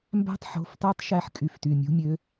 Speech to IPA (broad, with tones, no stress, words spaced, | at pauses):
mbæ̤˧˥tˤħo̤˩˧˩ftɑ˧˥tˤ ʃæ˧˥ħkʼy˩˧˩fty˩˧˩ mʲṳ˧˥mʲø˧˥